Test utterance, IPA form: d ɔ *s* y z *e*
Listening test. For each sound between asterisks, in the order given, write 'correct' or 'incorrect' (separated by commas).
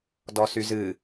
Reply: correct, incorrect